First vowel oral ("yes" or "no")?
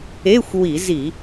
yes